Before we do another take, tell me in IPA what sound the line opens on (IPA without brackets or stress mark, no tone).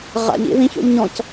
ʁ